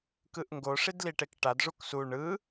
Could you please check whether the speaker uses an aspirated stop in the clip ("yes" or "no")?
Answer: no